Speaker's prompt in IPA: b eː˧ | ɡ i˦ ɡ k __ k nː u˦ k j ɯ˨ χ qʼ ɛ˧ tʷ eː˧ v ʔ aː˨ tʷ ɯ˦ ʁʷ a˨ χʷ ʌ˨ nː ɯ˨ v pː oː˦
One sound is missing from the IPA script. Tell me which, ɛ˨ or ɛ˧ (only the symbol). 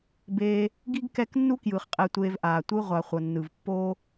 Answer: ɛ˧